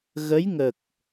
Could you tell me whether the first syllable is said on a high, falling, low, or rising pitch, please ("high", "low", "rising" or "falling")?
rising